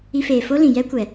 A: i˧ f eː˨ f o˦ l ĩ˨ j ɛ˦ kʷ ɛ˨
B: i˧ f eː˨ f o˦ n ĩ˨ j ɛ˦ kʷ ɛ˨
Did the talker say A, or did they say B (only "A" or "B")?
A